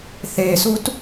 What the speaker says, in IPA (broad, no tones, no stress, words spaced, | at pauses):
θesut